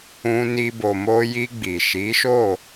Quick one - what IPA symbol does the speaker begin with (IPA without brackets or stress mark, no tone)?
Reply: ũ